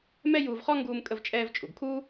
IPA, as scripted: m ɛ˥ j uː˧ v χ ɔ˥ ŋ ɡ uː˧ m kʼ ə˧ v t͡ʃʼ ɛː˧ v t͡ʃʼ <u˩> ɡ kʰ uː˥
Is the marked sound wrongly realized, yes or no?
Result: no